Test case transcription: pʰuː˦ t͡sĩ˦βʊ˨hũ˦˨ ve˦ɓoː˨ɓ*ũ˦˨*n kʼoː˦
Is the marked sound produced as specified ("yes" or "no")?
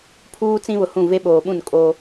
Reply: yes